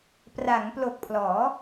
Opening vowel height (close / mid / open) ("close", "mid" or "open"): open